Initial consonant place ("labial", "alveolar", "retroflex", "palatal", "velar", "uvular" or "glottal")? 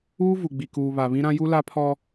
labial